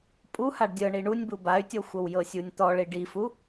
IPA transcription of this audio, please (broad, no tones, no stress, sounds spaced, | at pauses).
pʼ u h a ɖ dʲ ɤ ɳ i ɳ u nʲ b u b a y̯ tʲ ɔ xʷ ɤ w j ɤ sʲ u nʲ t̪ ɔ ɭ i ɖ i f u